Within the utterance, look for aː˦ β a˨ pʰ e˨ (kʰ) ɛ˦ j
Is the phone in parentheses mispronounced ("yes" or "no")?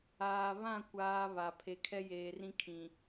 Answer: no